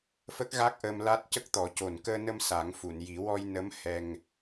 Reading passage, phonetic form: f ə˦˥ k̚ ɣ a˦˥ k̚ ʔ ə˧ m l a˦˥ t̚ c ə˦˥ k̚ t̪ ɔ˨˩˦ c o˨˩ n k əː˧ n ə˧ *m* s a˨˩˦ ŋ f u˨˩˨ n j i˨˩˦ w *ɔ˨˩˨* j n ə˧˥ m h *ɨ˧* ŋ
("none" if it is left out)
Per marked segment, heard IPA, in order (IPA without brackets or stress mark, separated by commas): m, ɔ˧, ɛ˧